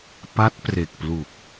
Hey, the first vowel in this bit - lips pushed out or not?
no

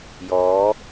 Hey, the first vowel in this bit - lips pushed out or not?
yes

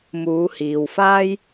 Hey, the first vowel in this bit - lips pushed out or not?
yes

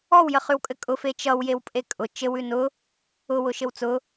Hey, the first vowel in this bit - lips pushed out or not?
yes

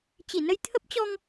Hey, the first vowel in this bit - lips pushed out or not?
no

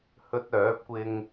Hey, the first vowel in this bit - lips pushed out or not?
yes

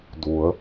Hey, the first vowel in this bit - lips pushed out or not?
yes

